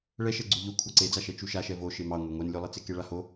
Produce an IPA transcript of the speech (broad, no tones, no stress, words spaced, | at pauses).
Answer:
ɭɛʃɛɡ͡ǀu ʎo kʷʰɑǀed͡zaʃɛ t͡ʃuʃaʃɛ vo ʃemɑ ŋʷeŋʷɛnlʲolˠe t͡sekeɭaho